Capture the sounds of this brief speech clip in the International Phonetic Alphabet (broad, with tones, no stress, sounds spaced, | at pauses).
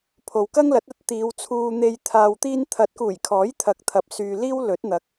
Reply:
pʰ o˨ w k ɐ˥ ŋ l ɐ˨˥ t̚ ɐ˥ t̚ t̪ iː˨˧ w t͡sʰ uː˧ n̪ e˧ j t̪ʰ aː˨ w t̪ iː˧ n t̪ʰ ɐ˨˥ t̚ k uː˨˩ j kʰ ɔː˨˥ j t̪ʰ ɐ˨˥ k̚ t̪ʰ ɐ˨ p̚ s yː˧ l iː˥ w l ɵ˨˥ t̚ n̪ ɐ˨˥ k̚